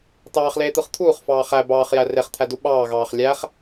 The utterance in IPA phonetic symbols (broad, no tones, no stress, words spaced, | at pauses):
tɑːχleːt̪ɯχ t̪ʰuːχfɑː χæ bɑːχjæ reχt̪ʰædu ɓɑːɣɑːχ lʲæχ